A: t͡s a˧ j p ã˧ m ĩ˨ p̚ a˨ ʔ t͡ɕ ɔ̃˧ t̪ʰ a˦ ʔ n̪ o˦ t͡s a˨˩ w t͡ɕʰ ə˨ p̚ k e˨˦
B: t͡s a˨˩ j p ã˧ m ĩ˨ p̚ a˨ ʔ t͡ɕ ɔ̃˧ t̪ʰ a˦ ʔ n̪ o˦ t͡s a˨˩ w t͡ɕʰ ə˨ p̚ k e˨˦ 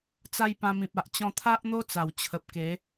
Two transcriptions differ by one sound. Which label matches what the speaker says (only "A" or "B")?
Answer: A